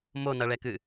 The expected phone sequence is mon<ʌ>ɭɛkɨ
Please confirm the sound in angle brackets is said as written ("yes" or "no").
yes